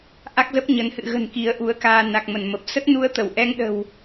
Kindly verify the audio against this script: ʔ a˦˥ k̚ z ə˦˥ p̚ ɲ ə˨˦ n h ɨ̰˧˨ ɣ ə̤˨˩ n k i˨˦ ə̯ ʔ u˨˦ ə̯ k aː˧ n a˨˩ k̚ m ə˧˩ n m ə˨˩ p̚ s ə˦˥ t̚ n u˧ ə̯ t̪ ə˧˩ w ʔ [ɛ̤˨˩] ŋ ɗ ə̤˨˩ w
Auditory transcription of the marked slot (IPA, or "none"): ɛ˧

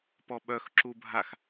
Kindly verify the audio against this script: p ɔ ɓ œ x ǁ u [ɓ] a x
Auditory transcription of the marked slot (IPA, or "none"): bʱ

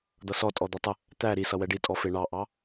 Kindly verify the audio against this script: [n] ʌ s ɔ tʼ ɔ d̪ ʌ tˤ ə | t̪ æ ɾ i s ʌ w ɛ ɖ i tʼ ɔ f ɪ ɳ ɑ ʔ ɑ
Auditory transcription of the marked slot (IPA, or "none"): d̪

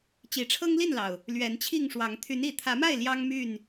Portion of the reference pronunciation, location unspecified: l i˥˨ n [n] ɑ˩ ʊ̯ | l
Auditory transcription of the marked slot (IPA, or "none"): l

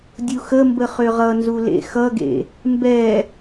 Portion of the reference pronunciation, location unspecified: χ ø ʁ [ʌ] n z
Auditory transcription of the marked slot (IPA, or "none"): ʌ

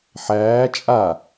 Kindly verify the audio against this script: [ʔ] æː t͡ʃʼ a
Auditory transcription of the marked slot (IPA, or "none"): ħ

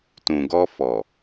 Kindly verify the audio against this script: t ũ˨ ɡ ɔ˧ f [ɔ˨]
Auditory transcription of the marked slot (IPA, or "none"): ɔ˨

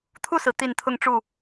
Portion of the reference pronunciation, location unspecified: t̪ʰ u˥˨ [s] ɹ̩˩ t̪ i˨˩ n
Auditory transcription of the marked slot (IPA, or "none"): s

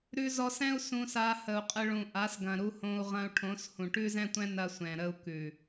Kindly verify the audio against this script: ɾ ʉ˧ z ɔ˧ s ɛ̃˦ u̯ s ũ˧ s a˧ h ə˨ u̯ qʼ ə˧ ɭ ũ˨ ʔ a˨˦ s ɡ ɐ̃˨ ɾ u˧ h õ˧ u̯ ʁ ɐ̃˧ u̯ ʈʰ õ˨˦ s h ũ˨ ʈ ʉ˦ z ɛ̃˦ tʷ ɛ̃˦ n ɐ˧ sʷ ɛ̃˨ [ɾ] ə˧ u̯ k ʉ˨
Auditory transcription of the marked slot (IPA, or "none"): ɾ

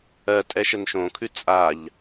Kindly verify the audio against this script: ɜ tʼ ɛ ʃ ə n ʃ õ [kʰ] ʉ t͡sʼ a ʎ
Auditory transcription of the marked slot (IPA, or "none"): kʰ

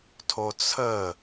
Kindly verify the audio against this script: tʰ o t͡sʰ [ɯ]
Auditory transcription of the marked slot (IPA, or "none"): ə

